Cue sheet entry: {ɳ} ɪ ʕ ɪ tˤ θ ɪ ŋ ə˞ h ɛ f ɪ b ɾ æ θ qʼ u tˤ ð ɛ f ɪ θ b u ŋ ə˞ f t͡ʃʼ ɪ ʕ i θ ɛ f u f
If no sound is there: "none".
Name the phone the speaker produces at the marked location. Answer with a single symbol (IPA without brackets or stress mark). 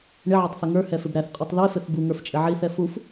ɳ